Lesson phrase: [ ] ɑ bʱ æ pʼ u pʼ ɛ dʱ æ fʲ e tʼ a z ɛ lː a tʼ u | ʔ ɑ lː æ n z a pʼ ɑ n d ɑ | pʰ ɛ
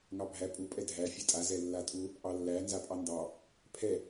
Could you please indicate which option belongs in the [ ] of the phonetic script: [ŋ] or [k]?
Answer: ŋ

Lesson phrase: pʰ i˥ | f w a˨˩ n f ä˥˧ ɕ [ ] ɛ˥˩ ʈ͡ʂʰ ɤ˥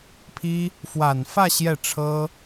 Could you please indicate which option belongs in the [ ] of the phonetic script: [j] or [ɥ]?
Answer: j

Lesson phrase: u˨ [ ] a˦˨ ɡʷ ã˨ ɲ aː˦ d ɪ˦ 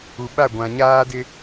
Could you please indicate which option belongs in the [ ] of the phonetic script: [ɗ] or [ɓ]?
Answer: ɓ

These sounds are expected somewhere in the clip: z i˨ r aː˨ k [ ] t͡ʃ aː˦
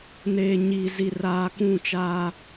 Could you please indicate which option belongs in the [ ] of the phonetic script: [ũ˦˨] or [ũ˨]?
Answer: ũ˦˨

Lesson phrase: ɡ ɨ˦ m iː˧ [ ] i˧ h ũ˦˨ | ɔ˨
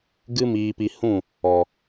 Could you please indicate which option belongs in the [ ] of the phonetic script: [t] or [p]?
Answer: p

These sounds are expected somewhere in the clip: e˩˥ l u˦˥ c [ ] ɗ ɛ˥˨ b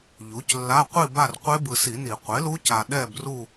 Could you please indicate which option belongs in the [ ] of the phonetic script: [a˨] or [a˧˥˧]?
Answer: a˨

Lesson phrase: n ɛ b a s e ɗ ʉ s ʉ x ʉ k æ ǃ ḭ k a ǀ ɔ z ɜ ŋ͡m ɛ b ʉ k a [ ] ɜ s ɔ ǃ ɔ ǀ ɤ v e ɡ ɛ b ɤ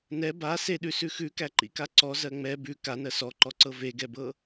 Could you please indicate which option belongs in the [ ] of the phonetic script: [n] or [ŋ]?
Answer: n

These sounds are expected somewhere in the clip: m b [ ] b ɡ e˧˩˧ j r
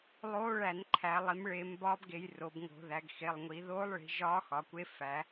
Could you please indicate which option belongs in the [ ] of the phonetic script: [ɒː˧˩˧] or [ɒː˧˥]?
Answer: ɒː˧˥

